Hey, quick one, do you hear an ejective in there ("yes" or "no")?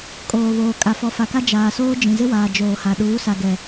yes